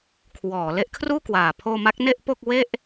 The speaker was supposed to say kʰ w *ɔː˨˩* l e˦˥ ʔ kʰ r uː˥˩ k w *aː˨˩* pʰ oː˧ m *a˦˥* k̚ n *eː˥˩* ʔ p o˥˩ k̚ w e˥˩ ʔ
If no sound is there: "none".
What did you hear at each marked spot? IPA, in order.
ɔː˩˦, aː˨˩, a˦˥, e˥˩

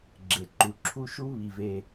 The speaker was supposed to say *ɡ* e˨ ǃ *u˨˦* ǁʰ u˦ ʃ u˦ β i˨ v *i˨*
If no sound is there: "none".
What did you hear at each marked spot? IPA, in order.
ɡ͡ǁ, u˨, e˨

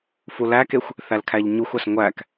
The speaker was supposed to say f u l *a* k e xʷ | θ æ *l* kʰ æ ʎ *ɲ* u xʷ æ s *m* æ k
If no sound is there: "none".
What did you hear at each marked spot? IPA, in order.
æ, l, ɲ, ŋʷ

